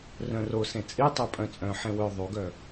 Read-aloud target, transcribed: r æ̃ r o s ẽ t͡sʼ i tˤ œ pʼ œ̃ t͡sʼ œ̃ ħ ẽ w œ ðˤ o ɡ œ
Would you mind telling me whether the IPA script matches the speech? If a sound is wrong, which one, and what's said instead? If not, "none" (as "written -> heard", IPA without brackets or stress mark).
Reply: æ̃ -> œ̃